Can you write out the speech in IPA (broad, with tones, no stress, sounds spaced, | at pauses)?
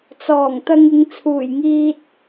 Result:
t͡s ɔː˨˩ ŋ t̪ ɐ˧ ŋ ɪ˨˧ ŋ t͡sʰ uː˨˩ j ŋ iː˧ t̚